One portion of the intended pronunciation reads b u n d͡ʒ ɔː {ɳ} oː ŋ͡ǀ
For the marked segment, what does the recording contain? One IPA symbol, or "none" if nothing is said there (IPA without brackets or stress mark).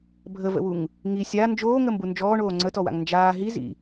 ɳ